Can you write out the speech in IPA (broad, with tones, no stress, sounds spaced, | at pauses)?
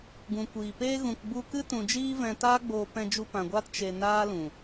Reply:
ɡ ũ˨ kʷ iː˨ p eː˦ ɣ ũ˨ k ɡ͡b u˧ k ɨ˦ t ũ˧ d͡ʒ iː˦ v ɛ̃˧ t aː˦ ɡ͡b oː˧ p ɛ̃˧ d͡ʒ u˧ p ã˨ ɡʷ aː˦ t t͡ʃ e˧ n aː˦ l ũ˨